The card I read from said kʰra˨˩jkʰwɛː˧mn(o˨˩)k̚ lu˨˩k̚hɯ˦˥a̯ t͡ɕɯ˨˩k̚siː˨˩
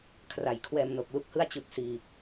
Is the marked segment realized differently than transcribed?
no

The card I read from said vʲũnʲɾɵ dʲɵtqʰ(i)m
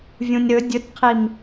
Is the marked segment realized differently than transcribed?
no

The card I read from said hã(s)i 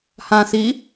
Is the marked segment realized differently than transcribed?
no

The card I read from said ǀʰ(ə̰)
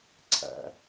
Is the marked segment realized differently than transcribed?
yes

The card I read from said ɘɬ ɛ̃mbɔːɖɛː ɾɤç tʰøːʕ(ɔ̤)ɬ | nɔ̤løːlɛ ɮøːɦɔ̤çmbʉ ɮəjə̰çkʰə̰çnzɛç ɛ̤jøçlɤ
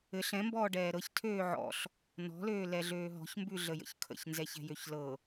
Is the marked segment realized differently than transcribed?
yes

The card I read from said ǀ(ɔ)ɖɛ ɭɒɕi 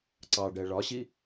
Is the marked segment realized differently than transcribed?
yes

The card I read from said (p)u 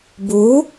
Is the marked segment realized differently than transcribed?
yes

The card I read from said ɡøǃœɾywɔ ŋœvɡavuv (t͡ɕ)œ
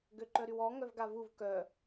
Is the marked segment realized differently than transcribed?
yes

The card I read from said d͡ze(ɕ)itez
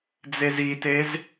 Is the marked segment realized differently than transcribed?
yes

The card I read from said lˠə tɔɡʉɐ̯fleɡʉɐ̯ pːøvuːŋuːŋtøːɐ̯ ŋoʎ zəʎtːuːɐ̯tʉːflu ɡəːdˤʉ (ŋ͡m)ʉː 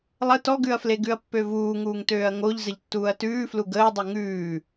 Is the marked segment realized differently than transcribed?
yes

